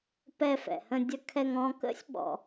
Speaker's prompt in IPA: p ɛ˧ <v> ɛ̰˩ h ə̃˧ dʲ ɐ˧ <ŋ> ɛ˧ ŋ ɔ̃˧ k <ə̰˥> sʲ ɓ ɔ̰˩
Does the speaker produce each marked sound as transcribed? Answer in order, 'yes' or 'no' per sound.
no, no, yes

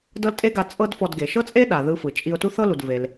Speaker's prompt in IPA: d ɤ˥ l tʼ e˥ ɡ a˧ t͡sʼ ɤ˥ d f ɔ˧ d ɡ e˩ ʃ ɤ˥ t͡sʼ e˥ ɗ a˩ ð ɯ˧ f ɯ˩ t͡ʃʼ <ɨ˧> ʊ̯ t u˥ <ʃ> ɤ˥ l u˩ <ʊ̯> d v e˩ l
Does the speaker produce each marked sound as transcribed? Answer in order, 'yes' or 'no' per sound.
no, no, no

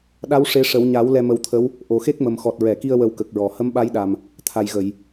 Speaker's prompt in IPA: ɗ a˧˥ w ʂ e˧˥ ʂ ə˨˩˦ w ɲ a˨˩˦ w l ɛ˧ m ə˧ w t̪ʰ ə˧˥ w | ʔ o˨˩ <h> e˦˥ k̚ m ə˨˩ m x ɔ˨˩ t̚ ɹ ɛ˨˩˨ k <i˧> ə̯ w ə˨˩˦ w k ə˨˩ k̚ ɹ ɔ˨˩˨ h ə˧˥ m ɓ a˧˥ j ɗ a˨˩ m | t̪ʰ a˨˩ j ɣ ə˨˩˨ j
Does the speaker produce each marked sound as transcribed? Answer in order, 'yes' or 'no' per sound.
no, yes

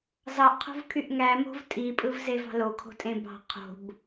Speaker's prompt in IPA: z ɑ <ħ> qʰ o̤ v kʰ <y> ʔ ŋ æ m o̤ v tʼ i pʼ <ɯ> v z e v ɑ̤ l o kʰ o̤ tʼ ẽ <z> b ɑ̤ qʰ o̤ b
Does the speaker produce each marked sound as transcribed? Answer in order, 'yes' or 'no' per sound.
no, yes, yes, no

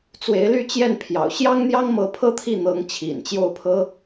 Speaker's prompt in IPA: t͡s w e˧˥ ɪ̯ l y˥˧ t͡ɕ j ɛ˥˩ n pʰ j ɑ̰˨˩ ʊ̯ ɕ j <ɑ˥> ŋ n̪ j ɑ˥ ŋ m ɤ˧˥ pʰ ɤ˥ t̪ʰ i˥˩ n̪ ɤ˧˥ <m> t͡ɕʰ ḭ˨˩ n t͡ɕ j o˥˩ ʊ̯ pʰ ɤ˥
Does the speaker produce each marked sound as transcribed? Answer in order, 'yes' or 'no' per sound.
yes, no

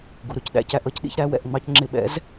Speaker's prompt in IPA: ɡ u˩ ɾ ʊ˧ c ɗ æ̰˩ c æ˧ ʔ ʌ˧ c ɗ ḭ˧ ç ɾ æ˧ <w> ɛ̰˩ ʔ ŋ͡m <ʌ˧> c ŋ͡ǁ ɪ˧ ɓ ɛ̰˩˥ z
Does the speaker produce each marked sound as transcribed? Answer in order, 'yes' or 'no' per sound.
yes, no

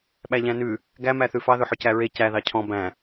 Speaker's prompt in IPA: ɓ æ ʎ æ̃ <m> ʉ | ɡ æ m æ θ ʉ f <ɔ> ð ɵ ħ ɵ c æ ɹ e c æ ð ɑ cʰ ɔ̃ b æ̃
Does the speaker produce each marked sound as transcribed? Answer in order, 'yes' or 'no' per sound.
no, no

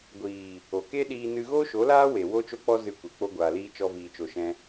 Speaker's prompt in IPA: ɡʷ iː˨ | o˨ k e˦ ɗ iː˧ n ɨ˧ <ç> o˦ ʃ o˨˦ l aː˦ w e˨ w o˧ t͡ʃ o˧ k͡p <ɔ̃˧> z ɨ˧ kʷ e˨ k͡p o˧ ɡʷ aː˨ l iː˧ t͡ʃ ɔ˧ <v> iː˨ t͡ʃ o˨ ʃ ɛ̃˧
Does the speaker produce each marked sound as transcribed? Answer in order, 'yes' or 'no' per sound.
no, no, yes

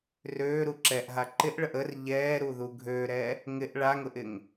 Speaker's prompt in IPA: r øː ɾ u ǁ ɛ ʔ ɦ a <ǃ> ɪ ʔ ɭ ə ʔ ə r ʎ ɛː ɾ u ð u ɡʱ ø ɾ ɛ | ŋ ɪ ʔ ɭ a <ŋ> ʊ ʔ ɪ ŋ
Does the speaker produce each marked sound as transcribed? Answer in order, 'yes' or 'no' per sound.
yes, yes

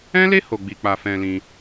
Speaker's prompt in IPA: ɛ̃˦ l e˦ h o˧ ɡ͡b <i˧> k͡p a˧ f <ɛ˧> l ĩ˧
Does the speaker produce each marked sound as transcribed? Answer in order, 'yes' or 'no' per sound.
yes, no

